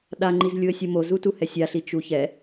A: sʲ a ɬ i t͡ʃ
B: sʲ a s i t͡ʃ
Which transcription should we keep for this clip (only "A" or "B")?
A